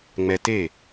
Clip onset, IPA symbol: ŋ͡m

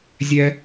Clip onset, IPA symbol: zʲ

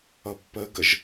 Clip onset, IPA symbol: ʌ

